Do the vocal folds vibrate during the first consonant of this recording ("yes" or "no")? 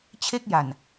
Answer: no